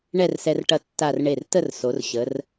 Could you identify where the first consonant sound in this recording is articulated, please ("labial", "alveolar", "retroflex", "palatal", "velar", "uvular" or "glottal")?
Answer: retroflex